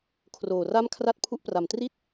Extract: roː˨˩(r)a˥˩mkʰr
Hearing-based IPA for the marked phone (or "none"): r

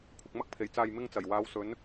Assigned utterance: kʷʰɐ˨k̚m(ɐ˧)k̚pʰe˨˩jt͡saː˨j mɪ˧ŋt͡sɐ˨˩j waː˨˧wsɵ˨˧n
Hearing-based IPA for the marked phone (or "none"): ɐ˧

